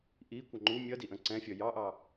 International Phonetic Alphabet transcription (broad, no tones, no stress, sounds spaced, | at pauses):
ʔ i kʷ ʌ ŋ͡ǃ u mʲ ʌ d i ʔ ə̃ ǀ ɛ̃ fʲ ʌ j ɑ ʔ ɑ